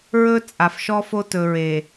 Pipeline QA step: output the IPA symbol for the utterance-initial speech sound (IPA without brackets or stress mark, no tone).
ɹ